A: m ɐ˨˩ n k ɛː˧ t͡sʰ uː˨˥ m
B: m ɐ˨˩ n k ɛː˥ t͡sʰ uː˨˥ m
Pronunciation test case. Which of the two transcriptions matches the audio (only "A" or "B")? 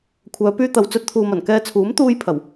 A